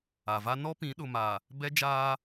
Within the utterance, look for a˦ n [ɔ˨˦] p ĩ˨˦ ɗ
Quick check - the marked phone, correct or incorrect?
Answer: incorrect: ɔ˦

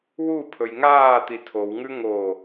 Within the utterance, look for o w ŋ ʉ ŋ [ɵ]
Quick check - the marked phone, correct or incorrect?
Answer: incorrect: o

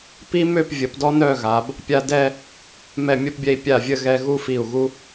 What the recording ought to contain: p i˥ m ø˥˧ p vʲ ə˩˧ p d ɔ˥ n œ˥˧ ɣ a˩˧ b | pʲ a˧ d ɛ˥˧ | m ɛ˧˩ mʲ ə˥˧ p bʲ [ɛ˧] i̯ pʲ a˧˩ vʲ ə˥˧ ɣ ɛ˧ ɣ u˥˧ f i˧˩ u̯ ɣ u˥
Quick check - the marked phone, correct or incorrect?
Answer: correct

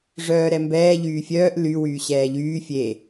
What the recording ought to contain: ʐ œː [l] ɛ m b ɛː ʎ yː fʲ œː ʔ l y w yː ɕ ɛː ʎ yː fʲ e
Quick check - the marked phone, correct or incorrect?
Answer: incorrect: ɾ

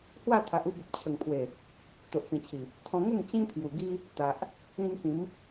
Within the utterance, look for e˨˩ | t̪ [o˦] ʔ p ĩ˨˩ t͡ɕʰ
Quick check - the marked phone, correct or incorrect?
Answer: incorrect: o˨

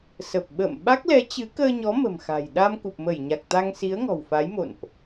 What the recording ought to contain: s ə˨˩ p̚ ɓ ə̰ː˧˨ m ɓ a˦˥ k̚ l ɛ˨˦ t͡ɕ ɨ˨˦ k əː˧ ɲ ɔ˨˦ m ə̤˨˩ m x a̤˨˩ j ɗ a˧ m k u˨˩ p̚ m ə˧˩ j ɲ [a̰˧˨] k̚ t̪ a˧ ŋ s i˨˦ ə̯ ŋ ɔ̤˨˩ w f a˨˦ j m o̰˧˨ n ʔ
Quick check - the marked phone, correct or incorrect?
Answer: incorrect: a˨˩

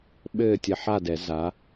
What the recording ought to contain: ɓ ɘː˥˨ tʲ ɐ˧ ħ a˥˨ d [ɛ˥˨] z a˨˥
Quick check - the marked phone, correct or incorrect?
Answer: incorrect: ɛ˨˩˦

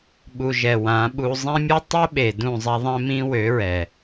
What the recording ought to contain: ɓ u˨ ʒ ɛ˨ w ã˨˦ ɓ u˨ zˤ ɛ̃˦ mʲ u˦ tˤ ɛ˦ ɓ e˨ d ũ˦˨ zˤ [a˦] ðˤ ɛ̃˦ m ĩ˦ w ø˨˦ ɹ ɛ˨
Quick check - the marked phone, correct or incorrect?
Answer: correct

